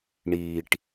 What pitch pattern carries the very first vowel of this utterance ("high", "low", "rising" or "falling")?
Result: low